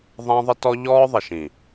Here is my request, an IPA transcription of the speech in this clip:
ðˤ æ̃˦ ðˤ ɪ˦ t ɔ˦ ʎ ɔː˦ ðˤ ɪ˨ ʃ ĩ˨

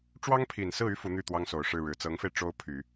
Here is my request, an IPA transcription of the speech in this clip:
ʈ͡ʂ w ɑ˥ ŋ pʰ i˨˩ n s ɹ̩˥˩ y˥ f u˧˥ n̪ y˥˩ t̪ w ɑ˥ ŋ s o˨˩ ʊ̯ ʂ ɻ̩˥˩ ɻ ɻ̩˨˩ t͡s ɤ˧˥ ŋ f e˧ ɪ̯ ʈ͡ʂ o˥ ʊ̯ pʰ y˨˩˦

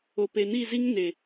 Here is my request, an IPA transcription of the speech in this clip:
o˨ p e˨ n i˦˨ z i˦ ŋ n e˨

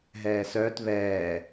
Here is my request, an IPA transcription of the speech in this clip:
ɦ ɛː s œː t β ɛː

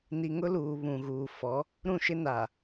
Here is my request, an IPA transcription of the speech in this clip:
n i˨ ŋ ʊ˦ l uː˨ β ũ˨ ɣ uː˨ f ɔ˨˦ | ɾ ũ˦˨ ʃ ɪ˦ n a˨

